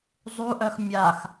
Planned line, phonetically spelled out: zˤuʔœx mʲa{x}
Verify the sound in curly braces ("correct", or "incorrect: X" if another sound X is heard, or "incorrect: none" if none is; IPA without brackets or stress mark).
correct